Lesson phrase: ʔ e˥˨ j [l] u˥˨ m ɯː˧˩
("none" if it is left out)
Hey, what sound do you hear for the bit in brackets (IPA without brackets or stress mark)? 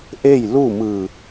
l